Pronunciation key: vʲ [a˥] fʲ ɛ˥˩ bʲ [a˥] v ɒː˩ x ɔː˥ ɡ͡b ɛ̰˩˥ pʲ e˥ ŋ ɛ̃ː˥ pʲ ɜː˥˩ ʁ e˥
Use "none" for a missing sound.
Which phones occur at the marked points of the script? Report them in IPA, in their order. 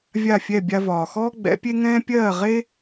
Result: a˥˩, a˧

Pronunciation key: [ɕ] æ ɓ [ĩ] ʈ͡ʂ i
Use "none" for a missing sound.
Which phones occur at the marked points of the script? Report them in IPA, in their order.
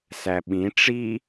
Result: s, ĩ

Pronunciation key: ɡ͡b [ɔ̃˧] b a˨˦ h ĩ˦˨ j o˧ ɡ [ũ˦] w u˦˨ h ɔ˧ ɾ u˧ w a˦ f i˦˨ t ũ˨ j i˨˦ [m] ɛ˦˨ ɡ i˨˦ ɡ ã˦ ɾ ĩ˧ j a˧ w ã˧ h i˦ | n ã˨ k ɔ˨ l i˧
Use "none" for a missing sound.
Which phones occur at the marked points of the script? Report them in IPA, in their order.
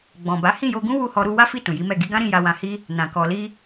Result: ɔ̃˨, ũ˦, m

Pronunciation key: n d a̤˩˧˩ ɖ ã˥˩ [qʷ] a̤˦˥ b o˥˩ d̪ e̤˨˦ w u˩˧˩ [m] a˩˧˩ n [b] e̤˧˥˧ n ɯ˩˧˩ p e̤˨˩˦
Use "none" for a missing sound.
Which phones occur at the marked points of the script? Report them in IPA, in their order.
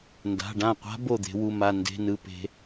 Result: qʷ, m, d

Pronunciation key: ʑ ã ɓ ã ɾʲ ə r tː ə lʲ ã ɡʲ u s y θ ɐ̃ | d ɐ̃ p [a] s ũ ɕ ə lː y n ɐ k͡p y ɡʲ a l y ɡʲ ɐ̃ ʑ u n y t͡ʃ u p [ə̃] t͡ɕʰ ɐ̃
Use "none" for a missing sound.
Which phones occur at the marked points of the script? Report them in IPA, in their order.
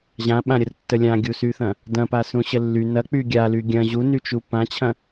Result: a, ã

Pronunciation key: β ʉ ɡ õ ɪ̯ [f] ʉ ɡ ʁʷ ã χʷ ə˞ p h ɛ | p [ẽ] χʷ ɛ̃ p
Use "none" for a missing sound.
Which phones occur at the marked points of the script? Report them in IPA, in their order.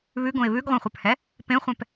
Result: β, ẽ

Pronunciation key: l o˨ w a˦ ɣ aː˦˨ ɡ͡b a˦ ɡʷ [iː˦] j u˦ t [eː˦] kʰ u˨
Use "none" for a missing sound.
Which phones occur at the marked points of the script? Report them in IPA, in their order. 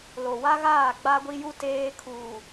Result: i˦, eː˦

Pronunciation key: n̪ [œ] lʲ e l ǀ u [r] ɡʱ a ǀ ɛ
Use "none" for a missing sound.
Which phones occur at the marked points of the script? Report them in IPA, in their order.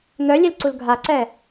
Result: œ, l

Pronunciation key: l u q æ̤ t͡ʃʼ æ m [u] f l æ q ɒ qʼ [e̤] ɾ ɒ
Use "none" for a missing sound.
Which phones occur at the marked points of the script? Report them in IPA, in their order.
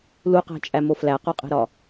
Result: o, e̤

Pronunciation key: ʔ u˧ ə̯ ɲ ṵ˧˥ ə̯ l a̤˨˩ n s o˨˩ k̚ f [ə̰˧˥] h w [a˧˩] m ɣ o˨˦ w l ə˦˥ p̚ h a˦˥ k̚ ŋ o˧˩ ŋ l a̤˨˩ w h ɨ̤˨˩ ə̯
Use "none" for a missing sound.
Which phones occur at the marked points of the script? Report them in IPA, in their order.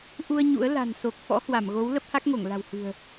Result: ɔ̰˧˥, a˧˩

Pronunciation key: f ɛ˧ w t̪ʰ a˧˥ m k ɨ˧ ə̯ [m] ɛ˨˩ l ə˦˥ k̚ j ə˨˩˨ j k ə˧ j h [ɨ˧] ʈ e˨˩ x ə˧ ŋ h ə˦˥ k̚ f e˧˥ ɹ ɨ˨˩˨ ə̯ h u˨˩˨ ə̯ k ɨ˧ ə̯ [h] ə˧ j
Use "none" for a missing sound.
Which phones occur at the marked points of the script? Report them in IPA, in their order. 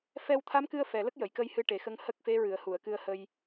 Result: f, ɨ˧, h

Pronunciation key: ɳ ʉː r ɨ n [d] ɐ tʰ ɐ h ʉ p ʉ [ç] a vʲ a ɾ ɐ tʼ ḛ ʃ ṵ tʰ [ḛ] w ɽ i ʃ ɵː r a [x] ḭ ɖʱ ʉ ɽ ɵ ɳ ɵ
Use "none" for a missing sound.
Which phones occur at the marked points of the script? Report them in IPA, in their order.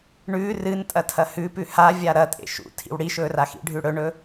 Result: tʼ, h, ḭ, x

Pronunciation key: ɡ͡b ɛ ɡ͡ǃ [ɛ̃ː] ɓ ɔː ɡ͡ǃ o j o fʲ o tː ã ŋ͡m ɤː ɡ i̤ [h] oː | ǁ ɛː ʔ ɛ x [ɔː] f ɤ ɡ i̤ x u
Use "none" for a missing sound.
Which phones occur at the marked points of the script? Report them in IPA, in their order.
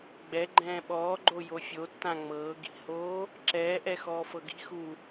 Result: ɛ̃ː, h, ɔː

